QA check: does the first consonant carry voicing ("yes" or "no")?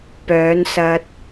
no